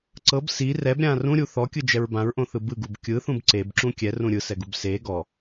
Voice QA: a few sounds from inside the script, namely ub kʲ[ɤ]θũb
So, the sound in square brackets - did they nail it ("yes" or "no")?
no